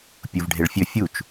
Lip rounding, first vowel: rounded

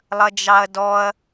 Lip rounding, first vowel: unrounded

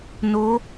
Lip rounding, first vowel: rounded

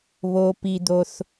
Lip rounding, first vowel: rounded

